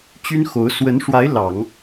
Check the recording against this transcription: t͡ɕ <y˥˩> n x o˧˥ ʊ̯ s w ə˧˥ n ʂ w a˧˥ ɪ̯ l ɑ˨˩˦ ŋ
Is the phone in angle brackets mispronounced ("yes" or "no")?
yes